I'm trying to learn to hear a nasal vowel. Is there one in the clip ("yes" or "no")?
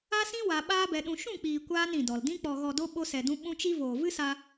yes